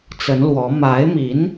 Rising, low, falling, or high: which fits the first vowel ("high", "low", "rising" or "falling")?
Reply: rising